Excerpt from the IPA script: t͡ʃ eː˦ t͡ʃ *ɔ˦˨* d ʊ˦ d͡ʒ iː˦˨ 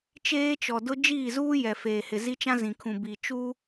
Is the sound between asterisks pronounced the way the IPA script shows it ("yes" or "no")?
no